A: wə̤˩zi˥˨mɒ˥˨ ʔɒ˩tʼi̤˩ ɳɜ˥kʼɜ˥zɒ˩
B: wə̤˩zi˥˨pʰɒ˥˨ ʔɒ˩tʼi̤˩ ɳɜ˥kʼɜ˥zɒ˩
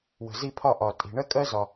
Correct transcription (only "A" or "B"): B